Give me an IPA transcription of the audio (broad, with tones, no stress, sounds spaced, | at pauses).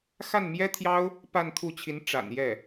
x a˥˩ n m j ɛ˥ t̪ʰ j ɑ˥ ʊ̯ | p a˥˧ n t̪ʰ u˥˩ t͡ɕʰ i˧˥ n ʈ͡ʂ a̰˨˩ n j ɛ˥˩